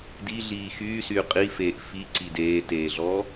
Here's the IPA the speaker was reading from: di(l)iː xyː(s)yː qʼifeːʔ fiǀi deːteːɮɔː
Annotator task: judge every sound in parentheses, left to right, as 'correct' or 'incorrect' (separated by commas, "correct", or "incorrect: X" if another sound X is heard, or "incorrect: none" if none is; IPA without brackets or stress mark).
incorrect: ɮ, correct